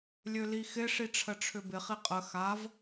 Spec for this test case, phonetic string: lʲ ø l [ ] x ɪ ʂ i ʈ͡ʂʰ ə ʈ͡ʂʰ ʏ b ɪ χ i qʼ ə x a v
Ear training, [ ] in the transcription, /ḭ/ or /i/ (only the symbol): i